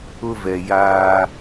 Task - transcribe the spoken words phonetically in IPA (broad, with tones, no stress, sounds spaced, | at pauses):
ʊ˦ v ɛ˨ j aː˦